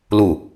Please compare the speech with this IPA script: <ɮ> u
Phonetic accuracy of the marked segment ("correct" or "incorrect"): incorrect